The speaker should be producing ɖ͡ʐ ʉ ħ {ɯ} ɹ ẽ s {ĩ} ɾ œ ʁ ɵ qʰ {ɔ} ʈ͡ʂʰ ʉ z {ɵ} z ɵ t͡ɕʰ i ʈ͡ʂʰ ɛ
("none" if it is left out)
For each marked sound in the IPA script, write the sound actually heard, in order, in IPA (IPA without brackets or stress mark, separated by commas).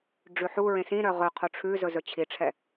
u, ĩ, o, ɵ